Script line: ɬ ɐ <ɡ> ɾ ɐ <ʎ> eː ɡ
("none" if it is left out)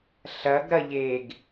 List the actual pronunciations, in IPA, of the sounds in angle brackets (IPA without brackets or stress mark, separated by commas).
ɡ, ʎ